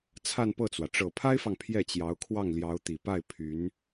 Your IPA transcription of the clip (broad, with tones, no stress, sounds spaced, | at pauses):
t͡sʰ a˥˧ n p ɤ˥˩ t͡s w ä˩ ʈ͡ʂ ɤ˨˩ pʰ a˥ ɪ̯ f ɑ˨ ŋ pʰ j ɛ˥˩ t͡ɕ j ɑ˧˥ ʊ̯ kʰ w ɑ˥˩ ŋ l j ɑ˧˥ ʊ̯ t̪ i˨˩ p a˥˩ ɪ̯ pʰ y˧˥ n